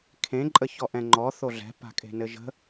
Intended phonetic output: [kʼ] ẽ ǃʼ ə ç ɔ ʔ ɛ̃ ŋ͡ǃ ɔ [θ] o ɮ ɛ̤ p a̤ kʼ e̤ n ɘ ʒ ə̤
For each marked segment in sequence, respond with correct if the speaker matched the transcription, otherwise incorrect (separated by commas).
incorrect, correct